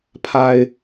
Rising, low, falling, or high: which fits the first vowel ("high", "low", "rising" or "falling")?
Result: low